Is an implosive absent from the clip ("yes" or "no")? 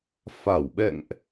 no